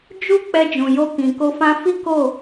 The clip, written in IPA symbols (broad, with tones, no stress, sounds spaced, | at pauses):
d͡ʒ u˦ k͡p ɛ˧ d͡ʒ ũ˨ j o˧ k ĩ˨ k o˧ f ã˧ f i˦ k o˦˨